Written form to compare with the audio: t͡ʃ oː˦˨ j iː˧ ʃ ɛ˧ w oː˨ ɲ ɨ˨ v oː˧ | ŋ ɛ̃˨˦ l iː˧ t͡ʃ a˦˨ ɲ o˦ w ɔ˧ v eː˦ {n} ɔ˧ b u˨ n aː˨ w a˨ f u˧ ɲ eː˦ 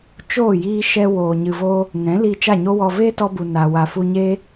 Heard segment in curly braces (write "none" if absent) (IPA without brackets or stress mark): t